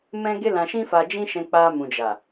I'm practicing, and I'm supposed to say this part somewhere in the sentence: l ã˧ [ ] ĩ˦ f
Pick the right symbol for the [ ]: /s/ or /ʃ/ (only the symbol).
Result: ʃ